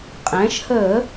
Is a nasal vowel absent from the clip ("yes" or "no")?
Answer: no